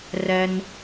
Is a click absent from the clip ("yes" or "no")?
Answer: yes